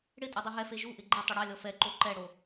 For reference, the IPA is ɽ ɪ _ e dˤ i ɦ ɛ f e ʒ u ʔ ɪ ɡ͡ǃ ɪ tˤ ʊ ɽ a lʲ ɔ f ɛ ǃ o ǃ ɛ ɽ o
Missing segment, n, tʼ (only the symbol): tʼ